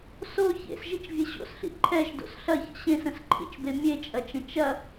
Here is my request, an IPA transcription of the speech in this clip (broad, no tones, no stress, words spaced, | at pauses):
so çḛsʒit͡ʃvʲe ɕo̰sɬḭ ǃʰɛʒdo̰s ɬɐçə̰ ɕẽsə̃sǃʰḭt͡ʃbe mʲet͡ʃʼɐt͡ʃə̃ t͡ʃɐ